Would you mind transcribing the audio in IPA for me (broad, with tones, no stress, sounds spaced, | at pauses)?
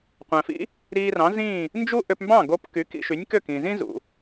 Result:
qʷ æ̃˩ f ḭ˥ | ɾ iː˧ r ɑ̃˩˥ z ĩ˥˩ | n d͡ʒ u˥ ʔ ø˧ p m b ɑ̃˥˩ ɡ o˧ p k y˩˥ k ḭ˧ ʃ y˩˥ nʲ k ø˥˩ k ĩ˩ z ĩ˥ z ṵ˩